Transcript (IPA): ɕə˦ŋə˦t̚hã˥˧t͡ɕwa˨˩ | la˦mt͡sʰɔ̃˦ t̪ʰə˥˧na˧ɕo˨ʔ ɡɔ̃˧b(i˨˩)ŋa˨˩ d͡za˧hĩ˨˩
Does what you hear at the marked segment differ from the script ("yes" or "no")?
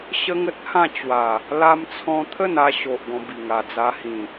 no